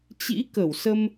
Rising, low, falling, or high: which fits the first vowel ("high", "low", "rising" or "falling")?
rising